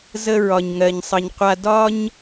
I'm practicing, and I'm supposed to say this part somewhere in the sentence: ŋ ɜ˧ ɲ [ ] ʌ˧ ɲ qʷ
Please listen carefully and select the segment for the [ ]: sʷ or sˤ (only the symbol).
sˤ